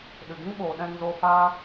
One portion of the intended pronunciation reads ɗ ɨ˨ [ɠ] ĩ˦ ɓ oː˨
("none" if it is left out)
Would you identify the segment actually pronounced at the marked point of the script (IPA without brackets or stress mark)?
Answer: ɡ